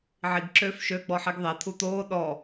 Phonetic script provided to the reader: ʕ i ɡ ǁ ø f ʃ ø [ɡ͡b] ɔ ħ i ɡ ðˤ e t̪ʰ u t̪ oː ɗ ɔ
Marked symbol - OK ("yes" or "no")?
yes